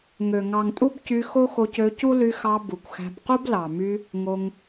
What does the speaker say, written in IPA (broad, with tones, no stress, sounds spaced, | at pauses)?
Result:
ŋ ø˨ ŋ ɑ˨ ŋ tʼ u˦ b c y˧ x o˦ x o˧ c ø˧ c u˦ l y˧ x ɑ˧ b u˨ kʷ x æ̤˧ b q u˦ b l ɑ˨ m y˧ | ŋ o˧ ŋ